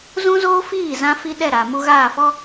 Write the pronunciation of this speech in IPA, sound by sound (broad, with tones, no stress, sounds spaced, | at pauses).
z ũ˦ z oː˦ f iː˦˨ z ã˦ f i˦ ɗ ɛ˦˨ ɾ a˨ m u˦ ɣ aː˦˨ f ɔ˦